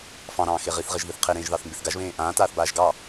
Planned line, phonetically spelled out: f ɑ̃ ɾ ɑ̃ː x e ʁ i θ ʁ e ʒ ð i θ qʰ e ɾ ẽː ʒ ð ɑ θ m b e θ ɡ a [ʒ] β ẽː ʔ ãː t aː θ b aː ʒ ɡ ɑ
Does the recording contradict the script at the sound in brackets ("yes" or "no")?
no